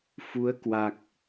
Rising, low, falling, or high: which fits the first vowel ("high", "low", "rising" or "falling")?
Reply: rising